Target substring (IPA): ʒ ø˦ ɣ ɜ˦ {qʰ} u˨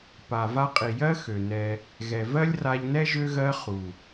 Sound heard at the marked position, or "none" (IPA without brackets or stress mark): χ